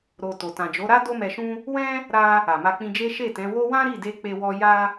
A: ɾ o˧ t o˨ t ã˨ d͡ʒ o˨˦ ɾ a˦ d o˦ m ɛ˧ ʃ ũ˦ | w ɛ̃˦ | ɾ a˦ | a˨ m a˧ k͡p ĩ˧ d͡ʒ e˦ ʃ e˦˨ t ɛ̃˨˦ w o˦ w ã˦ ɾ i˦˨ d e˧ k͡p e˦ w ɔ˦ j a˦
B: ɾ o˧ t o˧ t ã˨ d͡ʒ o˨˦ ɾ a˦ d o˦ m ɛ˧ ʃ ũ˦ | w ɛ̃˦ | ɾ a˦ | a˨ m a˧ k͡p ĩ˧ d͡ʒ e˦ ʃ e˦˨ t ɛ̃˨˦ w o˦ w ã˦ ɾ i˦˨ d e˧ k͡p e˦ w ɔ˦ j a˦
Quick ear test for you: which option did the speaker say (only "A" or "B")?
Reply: A